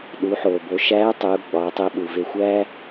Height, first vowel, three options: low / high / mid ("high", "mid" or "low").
high